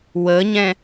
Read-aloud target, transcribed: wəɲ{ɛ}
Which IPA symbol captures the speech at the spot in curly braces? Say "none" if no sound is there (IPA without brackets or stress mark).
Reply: ɛ̃